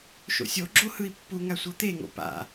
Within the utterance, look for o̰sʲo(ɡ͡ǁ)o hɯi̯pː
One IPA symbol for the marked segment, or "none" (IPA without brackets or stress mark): ɡ͡ǁ